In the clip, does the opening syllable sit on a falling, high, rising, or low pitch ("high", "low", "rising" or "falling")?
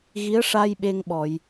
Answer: rising